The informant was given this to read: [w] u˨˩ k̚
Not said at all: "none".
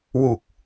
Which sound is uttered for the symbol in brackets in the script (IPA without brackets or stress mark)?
w